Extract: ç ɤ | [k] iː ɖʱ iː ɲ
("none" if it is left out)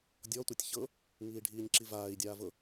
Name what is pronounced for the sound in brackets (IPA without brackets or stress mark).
ŋ